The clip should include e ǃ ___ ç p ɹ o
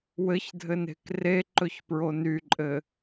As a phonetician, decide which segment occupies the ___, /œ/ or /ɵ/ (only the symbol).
ɵ